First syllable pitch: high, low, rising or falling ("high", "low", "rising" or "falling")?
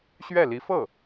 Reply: falling